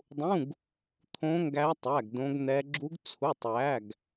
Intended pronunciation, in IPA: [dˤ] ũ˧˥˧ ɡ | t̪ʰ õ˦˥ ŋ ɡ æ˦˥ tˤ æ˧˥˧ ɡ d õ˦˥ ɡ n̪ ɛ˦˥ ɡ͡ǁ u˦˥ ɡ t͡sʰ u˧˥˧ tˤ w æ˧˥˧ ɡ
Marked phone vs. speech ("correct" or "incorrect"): correct